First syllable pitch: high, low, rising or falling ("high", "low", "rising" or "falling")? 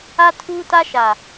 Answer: high